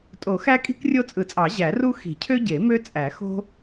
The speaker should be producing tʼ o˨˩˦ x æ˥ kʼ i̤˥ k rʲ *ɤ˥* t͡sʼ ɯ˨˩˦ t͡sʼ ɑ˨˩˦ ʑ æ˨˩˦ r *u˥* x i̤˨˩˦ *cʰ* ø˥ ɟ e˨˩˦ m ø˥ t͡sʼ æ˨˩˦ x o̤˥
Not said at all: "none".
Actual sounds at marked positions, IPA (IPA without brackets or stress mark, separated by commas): o˥, u˥, cʰ